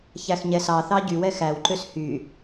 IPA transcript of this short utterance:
ç æ x ɲ ɛ s ɑ θ ɑ ɟ y w ɛ x æ w ǃ ø s h y

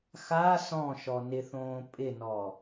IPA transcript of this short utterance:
x a s ɔ̃ ʃ ɔ n ɪ θ õː pʼ ɪ n ɔ

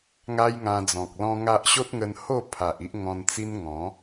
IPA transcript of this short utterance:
ŋ a˦ j ŋ ã˧ d͡z ɔ̃˨ k̚ l ɔ̃˦ ŋ a˦ ʔ ɕ o˦ t̚ ŋ ə˧ n h o˥˧ pʰ a˨ ʔ i˦ ʔ ŋ ɔ̃˧ n t͡s i˦ n ŋ ɔ̃˨˦

